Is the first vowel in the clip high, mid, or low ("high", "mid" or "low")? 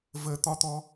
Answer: mid